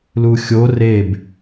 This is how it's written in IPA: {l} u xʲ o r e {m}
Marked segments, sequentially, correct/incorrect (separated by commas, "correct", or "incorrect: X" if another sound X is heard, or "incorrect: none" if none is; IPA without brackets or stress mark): correct, incorrect: b